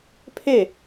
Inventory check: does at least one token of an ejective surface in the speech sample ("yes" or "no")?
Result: no